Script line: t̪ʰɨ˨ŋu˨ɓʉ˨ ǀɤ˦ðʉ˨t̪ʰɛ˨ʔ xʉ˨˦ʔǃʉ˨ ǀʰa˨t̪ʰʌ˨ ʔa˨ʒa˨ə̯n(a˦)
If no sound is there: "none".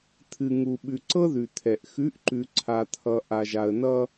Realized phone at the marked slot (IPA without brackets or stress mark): ʌ˦